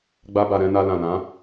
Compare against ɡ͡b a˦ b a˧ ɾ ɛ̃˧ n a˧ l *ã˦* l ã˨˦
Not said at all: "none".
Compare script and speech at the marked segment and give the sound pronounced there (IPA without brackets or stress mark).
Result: ã˨